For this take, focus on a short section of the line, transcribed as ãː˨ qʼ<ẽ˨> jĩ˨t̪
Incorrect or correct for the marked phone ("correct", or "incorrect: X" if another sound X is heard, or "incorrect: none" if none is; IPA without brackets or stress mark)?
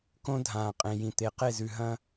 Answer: correct